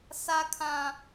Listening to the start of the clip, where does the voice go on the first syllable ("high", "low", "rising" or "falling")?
high